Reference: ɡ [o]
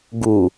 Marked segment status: incorrect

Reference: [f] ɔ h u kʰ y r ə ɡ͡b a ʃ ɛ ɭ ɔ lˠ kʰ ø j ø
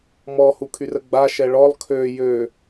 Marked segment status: incorrect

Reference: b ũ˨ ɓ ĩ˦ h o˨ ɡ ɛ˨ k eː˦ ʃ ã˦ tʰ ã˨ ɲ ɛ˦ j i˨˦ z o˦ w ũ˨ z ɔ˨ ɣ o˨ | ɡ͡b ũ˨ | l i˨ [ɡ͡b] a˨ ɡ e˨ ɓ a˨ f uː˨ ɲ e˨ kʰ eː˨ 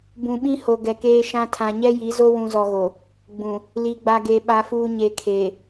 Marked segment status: correct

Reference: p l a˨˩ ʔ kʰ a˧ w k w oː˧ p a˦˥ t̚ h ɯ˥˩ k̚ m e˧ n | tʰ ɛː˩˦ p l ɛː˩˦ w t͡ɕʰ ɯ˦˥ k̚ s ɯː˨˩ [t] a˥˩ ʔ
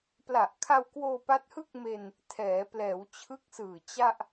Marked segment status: incorrect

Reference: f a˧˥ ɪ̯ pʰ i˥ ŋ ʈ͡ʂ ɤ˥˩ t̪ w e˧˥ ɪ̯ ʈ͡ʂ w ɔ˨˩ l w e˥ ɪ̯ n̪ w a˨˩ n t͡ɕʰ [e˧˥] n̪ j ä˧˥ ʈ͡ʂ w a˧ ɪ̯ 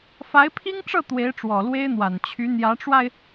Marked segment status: incorrect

